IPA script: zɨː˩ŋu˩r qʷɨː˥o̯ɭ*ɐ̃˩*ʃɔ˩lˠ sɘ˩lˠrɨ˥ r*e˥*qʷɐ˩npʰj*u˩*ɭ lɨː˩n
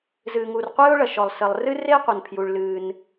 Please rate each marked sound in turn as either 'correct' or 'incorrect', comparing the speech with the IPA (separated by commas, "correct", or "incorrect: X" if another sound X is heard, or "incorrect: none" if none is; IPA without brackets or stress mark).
incorrect: ɐ˩, correct, correct